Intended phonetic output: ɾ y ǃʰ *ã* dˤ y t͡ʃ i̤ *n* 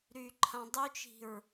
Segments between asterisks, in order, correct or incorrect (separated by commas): correct, incorrect